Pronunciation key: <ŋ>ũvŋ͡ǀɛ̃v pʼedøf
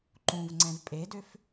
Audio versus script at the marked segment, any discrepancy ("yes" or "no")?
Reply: yes